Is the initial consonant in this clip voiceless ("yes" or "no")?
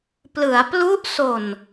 yes